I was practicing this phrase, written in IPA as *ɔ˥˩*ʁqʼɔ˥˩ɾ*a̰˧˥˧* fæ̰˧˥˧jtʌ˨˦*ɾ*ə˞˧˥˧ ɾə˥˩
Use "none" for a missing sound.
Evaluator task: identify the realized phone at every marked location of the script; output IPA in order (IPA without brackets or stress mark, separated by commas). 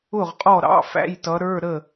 ʊ˥˩, ɑ̰˧˥˧, ɾ